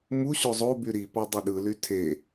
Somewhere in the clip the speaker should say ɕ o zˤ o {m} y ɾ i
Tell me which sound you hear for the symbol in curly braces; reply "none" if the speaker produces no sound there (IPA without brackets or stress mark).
b